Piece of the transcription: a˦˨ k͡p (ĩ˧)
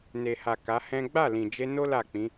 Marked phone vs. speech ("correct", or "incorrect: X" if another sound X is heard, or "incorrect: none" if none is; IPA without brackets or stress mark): incorrect: ĩ˨˦